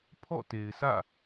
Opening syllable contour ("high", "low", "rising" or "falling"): falling